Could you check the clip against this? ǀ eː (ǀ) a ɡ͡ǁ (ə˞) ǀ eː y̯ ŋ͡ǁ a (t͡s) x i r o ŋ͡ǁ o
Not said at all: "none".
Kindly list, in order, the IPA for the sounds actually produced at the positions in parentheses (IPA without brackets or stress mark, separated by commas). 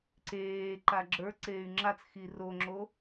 ǃ, ə˞, t͡s